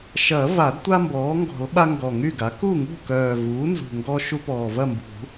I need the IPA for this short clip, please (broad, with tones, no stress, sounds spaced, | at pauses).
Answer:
ʃ ɐ˨˩˦ v a˨˩˦ d tʷ a˦ m b ɔː˩˥ ŋ ɡ ɔ̤˨˩˦ l ɓ a˦ ŋ ɡ ɔ˨˩ ŋ y˥˨ ɡ a˩˥ k u˥˨ ŋ ṳ˥˨ k œː˨˩ v uː˩˥ n z ṳ˨˩ ŋ ɡ ɔ˦ ʃ u˦ p ɔː˨˩ v ɐ˥˨ m b ṳ˨˩˦